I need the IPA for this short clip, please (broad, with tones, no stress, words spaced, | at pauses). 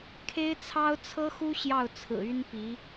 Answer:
kʰe˥ɪ̯t͡sʰɑ˥ʊ̯ t͡sʰɤ˥xu˥ ɕjɑ˥˩ʊ̯t͡sʰɹ̩˨˩ y˥npi˧˥